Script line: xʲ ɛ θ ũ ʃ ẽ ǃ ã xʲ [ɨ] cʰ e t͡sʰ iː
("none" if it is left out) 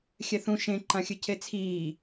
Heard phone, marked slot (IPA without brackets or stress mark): ɨ